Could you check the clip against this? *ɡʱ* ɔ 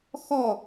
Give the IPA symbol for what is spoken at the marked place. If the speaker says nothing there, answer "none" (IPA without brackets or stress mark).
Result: x